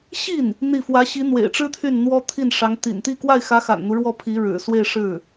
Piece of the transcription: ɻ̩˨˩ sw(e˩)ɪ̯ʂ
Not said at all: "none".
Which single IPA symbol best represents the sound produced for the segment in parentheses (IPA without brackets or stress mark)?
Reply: e˥˧